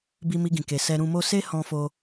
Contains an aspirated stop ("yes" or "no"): no